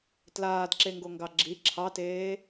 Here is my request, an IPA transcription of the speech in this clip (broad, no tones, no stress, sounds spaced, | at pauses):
t l aː d ǁ e ŋ ɡ o ŋ ɡ ɑ ɡ͡ǁ i ǁʰ ɑ t eː